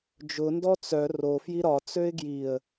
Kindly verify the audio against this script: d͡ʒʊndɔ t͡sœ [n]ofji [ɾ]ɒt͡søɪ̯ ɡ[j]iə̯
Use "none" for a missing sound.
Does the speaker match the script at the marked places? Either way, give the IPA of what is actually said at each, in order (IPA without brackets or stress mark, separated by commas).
r, ɾ, j